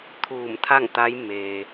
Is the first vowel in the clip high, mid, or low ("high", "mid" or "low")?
high